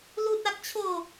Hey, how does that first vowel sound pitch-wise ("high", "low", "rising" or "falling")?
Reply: high